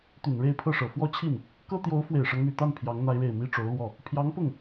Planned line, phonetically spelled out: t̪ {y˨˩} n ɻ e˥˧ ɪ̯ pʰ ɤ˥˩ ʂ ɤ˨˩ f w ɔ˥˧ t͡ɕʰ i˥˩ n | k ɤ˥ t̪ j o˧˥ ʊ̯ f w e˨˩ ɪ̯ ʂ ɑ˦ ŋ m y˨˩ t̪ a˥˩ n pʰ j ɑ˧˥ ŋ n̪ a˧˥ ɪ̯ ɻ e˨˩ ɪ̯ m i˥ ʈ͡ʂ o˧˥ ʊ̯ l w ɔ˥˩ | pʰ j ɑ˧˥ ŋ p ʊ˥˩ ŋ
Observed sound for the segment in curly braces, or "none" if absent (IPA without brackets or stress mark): y˨˩